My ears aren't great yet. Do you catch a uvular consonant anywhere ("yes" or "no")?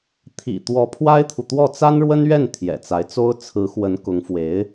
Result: no